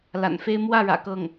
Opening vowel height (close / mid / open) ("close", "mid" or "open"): open